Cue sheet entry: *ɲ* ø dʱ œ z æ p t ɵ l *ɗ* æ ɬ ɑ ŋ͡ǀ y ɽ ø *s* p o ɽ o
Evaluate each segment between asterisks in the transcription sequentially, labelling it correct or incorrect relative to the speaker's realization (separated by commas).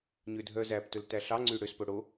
correct, incorrect, correct